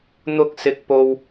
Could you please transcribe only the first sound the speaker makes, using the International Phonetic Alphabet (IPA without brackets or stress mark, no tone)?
n̪